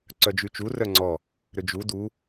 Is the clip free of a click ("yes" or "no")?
no